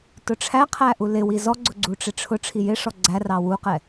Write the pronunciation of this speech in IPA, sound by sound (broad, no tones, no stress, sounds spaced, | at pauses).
t ʊ ʈ͡ʂʰ æ qʰ æ ʔ u l ɪ w i z ɔ ɡ͡ǀ ʊ ɡ͡ǀ u ʈ͡ʂ ɪ ʈ͡ʂʰ ʊ ʈ͡ʂʰ i j ɪ ʂ ɔ ɡ͡ǀ æ r ɑ w u q ɛ